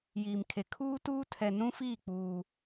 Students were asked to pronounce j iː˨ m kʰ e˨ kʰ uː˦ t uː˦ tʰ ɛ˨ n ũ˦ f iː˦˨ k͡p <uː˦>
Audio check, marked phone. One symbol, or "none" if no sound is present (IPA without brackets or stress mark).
uː˦